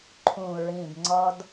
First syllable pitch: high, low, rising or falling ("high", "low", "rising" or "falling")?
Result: low